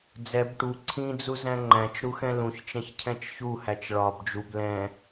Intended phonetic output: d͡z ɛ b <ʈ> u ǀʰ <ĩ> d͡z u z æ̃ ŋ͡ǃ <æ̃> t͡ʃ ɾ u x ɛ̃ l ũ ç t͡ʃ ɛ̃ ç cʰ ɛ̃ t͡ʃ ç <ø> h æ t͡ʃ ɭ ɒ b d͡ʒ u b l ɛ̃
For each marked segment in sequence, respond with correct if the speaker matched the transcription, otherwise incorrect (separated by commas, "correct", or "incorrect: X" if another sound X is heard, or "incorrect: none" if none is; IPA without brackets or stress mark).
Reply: correct, correct, correct, incorrect: u